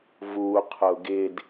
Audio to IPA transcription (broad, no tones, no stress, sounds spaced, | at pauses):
v u qʰ ʊ ɡ ɪ d